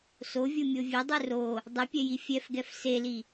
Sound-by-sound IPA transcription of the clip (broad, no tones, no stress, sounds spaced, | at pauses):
s o vʲ u mʲ o vʲ e dˤ ɯ r o | dˤ ɯ pʲ ɛ j i fʲ ɛ f ɡ ɛ f s e l i